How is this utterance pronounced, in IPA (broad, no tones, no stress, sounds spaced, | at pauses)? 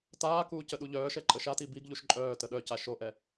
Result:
t aː k uː c ə ɗ u ʎ œː ʃ ɛ ǃʼ ə ʃ a t i b i ɡ ʎ u ʃ ǃʼ œː t ə ɗ œ c a ʃ o ʔ ɛ